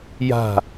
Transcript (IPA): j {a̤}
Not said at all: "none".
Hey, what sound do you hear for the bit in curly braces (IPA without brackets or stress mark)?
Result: a̤